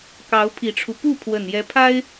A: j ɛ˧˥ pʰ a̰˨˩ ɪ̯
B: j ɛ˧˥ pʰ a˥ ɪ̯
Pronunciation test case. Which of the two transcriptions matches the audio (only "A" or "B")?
B